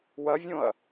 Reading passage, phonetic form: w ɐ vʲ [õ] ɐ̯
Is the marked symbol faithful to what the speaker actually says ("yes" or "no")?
yes